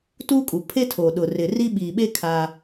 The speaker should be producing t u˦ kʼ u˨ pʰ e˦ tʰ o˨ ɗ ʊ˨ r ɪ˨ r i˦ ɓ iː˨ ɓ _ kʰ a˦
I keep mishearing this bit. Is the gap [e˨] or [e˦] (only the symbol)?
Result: e˦